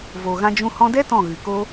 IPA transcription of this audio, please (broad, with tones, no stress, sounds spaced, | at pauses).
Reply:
v o˨ ɣ ã˧ d͡ʒ ũ˧ h ɔ̃˧ d ɛ˦ t ɔ̃˦˨ ɣ ɨ˨ k o˦